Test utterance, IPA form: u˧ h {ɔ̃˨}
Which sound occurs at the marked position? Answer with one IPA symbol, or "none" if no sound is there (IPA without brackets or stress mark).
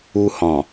ɔ̃˨